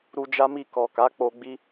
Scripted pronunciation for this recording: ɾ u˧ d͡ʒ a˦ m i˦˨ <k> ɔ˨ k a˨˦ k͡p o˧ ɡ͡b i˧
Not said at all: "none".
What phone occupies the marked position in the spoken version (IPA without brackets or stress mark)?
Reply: k